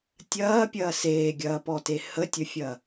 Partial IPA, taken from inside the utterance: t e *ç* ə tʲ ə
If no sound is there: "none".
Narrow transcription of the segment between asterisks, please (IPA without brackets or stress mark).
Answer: h